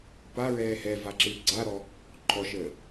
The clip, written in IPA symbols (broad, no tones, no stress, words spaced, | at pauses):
pa ɹɛːhɛva ǁɨːɡ͡ǀaɾɔ | ǃʰɔʃəː